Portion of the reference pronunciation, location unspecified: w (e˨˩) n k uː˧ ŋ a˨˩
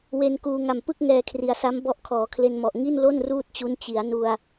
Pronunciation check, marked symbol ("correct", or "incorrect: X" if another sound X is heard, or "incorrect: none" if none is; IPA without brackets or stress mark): incorrect: e˧